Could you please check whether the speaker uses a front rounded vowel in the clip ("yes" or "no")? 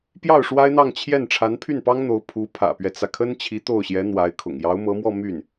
yes